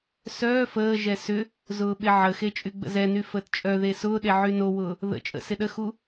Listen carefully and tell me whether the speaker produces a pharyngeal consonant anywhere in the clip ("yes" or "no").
yes